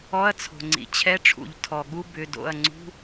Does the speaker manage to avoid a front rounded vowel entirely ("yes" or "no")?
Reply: no